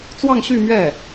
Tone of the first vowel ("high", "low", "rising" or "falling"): falling